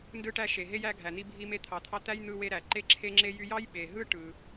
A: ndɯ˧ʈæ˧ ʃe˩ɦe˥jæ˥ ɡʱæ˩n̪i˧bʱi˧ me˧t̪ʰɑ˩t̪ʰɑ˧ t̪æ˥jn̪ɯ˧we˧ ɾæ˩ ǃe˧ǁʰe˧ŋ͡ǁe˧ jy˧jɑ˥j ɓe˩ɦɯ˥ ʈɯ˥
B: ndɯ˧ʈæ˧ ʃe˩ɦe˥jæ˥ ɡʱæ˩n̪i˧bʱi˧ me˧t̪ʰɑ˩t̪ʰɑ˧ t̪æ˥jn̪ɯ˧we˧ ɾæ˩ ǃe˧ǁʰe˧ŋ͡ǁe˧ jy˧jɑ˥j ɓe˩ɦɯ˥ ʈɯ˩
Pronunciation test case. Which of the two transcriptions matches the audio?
B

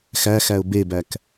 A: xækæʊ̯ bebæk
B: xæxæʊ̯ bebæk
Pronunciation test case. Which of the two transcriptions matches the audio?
B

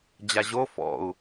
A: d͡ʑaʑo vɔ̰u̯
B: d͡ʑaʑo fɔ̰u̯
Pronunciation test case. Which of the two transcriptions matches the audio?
B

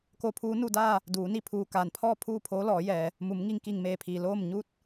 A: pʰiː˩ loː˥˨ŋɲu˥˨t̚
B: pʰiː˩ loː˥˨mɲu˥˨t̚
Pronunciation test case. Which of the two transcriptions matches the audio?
B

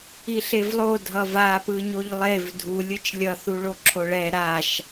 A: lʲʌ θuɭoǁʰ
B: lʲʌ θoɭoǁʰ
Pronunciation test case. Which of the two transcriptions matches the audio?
A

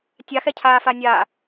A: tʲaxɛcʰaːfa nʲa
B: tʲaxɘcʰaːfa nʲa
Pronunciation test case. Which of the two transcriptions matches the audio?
A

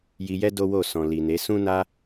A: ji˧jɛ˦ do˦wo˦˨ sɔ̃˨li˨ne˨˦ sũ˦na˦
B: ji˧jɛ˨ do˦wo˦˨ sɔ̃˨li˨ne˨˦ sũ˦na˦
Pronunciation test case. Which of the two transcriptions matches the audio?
A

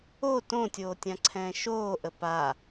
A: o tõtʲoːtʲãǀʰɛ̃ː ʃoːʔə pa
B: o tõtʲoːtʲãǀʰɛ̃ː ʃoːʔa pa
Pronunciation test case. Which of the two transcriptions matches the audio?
A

